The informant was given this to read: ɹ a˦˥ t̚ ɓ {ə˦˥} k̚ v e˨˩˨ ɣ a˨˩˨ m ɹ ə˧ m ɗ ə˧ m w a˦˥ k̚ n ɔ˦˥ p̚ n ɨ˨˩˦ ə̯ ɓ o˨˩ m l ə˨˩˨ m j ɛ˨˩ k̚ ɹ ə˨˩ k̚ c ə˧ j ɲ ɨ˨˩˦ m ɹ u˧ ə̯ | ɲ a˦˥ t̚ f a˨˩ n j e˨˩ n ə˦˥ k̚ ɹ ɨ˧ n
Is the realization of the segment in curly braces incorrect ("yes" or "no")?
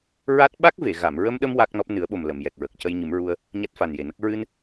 yes